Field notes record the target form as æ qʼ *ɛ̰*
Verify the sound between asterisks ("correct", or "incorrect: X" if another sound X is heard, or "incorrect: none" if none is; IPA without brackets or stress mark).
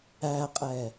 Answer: incorrect: ɛ